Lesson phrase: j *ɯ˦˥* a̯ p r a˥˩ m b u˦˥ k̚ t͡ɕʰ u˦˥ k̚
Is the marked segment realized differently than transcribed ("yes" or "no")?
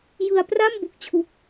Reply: yes